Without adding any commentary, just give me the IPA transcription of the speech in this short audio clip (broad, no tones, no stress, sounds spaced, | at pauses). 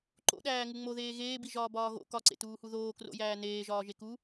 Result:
ǃ o̰ ɗ æː ŋ u ŋ͡m o ð eː ɣ eː b i ʒ ɒː b ɒː ɣ o̰ k ɒ ǀ ḛ t uː h u ð oː k r o̰ j æː n eː ʒ ɒː ʒ e k u